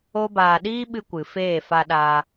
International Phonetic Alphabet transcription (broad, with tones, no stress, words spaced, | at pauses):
o˦baː˧ ɗiː˦ɓɨ˧kʷɨ˨ feː˦˨fa˧ɗa˧